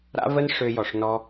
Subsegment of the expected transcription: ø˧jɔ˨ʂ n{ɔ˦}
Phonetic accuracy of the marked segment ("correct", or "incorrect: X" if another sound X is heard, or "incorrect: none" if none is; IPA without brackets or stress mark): correct